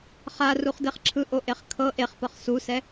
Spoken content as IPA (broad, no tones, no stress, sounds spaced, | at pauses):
χ a r u χ d e χ ǁʰ ɯ ʔ o ʔ e χ kʰ ɤ ʔ e χ p ɤ χ s u s ɛ